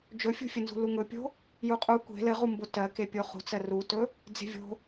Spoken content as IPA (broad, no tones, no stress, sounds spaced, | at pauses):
d͡ʒ ɵ fʲ ṳ fʲ ɘ n z ṳ l u ŋ ɵ pʲ o̤ | j u qʼ u kʷ e̤ l ɘ ʁ u m b o t ɜ k e pʲ o χ ṳ t͡s ɜ r u t ɵ | d͡z e̤ vʲ o̤